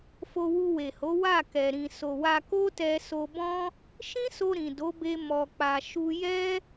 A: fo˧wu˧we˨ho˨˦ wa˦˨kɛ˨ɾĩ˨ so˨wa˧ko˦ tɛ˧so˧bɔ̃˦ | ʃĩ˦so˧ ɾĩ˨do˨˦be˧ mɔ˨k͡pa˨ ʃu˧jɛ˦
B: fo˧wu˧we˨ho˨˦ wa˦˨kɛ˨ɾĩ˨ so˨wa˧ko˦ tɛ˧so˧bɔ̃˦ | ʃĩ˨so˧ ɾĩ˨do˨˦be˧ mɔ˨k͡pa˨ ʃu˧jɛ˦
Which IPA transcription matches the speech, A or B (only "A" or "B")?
A